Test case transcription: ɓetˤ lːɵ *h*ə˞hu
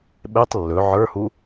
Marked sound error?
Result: yes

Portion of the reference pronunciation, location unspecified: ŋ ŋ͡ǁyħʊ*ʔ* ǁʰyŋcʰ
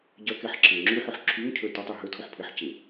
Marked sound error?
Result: yes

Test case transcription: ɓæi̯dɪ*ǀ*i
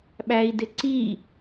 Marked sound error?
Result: no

